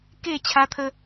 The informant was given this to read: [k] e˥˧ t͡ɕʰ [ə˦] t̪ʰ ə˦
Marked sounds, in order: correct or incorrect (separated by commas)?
correct, incorrect